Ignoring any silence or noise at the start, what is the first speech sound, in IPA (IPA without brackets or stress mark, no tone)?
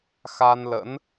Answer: x